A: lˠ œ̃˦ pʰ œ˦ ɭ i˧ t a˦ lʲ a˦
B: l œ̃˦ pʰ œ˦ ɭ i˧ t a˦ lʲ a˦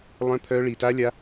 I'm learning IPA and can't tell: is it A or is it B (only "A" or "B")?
A